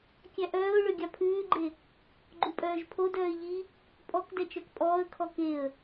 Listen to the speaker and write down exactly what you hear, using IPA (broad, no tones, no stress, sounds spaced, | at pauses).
kʲ æ ʔ œː ʊ̯ ɭ ø ɡʲ ɑ pʰ ʉː ɡ͡ǃ e | ɡ͡ǃ u pʼ œː ʒ pʰ o d œː ɪ̯ ʎ i | pʼ ɔ k d ɛ t͡ʃ œ k pʼ ɔː ə̯ kʰ ɔ k e ə̯